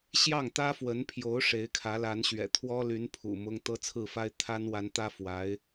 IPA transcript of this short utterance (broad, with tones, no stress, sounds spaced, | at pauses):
ɕ j ɑ˥˩ ŋ t̪ ä˥ f w ə˧˥ n pʰ j o˧˥ ʊ̯ ʂ e˧˥ ɪ̯ kʰ ä˧˥ l a˧˥ n ɕ ɥ ɛ̰˨˩ t̪ʰ w ɔ˥ l y˧˥ n pʰ ṵ˨˩ m ʊ˥ ŋ t̪ ɤ˥ t͡sʰ ɹ̩˥˩ f a˥ ɪ̯ t̪ʰ a˥ n w a˧˥ n t̪ ä˥ f w a˧˥ ɪ̯